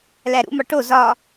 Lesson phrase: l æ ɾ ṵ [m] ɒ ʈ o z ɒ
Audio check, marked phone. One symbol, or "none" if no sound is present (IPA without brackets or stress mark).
m